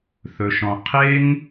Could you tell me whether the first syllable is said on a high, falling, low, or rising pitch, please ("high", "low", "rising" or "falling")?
high